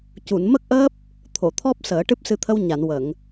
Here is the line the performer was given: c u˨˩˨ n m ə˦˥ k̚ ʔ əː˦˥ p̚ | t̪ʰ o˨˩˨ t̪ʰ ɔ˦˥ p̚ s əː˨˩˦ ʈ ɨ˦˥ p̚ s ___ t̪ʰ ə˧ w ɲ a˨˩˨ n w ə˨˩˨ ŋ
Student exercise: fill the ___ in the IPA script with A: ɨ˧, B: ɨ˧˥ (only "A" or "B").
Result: A